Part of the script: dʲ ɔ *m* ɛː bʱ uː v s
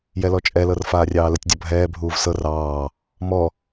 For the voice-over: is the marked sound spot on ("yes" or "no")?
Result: no